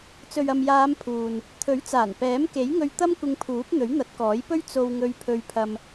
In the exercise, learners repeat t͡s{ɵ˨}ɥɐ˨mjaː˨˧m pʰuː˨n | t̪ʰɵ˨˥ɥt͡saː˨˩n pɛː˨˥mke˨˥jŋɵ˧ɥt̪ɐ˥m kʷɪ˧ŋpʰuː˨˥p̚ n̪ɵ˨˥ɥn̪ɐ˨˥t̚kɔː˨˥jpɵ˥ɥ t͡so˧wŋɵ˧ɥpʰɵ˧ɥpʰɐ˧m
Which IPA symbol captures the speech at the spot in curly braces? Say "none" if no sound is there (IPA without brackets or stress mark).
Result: ɵ˨